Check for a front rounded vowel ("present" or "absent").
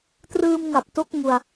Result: absent